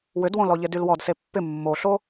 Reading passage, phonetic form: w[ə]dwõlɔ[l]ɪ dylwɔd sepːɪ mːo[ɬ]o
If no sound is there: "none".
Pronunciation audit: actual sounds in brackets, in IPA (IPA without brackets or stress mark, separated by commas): ʏ, ʎ, ɬ